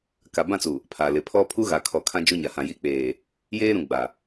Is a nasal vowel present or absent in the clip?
present